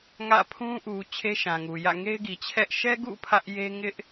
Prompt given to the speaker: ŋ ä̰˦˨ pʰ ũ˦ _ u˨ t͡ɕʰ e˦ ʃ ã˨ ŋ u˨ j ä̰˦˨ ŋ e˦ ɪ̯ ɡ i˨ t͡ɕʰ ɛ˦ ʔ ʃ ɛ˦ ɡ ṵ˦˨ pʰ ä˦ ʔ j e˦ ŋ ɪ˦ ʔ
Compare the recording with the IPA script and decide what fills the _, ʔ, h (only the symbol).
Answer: ʔ